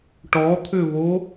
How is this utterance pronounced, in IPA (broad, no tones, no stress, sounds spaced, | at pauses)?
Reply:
ʈ ɔ t̪ʰ ʏ v o